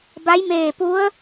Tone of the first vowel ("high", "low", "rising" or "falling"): rising